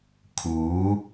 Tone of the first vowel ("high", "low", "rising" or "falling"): rising